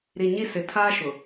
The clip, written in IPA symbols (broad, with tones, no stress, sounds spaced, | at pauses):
ɾ i˨ ɲ i˦˨ s ɪ˨ tʰ aː˦ ʃ ʊ˨